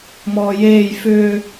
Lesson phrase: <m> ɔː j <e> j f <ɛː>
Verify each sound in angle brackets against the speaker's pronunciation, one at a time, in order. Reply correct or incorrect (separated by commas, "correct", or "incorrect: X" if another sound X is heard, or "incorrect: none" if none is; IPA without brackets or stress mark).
correct, incorrect: eː, incorrect: ʏː